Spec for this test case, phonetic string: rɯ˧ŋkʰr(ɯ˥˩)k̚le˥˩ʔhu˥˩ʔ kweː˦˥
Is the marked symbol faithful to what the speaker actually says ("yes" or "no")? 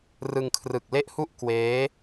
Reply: no